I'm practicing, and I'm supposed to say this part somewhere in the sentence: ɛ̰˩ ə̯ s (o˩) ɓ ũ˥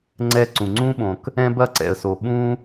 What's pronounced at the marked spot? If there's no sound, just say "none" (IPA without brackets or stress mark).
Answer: o˩